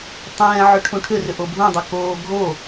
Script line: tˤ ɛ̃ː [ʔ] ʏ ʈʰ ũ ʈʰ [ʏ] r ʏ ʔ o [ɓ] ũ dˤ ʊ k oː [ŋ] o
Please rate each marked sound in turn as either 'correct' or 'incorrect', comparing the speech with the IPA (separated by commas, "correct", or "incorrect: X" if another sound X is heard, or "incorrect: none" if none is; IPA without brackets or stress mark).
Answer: incorrect: ʕ, correct, incorrect: bʱ, incorrect: ɡʱ